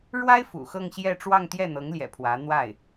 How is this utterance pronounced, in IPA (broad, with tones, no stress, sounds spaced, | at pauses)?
ɻ w a˥ ɪ̯ f ṵ˨˩ x ɤ˥˧ ŋ ɕ j ɛ˥˧ ʈ͡ʂ w ɑ˥˧ ŋ t̪ j ɛ˥˩ n̪ ɤ˧˥ ŋ l j ɛ̰˨˩ pʰ w ä˧˥ n̪ w a˥˩ ɪ̯